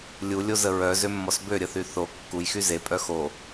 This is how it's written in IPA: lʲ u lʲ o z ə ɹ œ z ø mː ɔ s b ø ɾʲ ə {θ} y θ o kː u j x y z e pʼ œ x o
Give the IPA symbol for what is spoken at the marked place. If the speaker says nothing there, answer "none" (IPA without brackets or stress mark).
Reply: θ